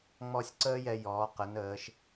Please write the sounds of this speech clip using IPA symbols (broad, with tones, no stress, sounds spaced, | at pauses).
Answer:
ŋ͡m ɔ˥ sʲ ǀ əː˥ j ɛ˧ j ɔː˩˧ q ə˩˧ n əː˩˧ ʃ